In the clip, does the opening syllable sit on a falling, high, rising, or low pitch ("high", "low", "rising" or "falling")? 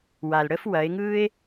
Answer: low